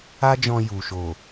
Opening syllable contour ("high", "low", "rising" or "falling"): high